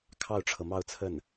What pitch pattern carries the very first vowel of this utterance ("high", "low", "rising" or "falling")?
falling